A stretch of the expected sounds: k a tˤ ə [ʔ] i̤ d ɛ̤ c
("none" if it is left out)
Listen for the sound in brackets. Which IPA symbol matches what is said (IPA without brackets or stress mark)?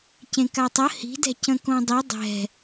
h